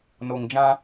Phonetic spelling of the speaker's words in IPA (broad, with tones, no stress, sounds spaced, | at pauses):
n o˨ ŋ d͡ʒ ã˦